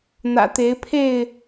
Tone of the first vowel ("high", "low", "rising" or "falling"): low